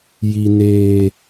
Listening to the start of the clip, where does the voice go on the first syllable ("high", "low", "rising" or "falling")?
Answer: high